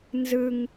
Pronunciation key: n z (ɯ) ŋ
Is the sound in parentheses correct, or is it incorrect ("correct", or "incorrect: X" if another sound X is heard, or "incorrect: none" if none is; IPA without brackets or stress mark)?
correct